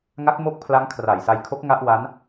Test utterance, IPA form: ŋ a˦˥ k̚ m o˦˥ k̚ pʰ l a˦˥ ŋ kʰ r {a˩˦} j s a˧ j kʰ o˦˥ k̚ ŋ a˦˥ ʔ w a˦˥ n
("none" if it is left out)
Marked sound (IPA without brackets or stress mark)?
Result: a˨˩